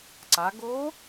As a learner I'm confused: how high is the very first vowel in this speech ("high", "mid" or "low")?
low